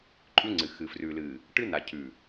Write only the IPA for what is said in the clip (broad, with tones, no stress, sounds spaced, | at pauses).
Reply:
ǃʼ ʉ˦ ŋ͡ǀ ɨ˨ x ɨ˨ f r ʉ˨ l ɨ˨ | ʈ ɨ˦ n a˨ cʰ ʉ˨